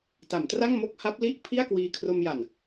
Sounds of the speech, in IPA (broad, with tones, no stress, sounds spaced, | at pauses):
t a˩˦ m t r a˥˩ ŋ m o˥˩ k̚ h a˦˥ p̚ l i˥˩ ʔ pʰ i˥˩ a̯ k w iː˧ kʰ r o˧ m j a˨˩ n